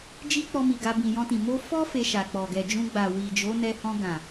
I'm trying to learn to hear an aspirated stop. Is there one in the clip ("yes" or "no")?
no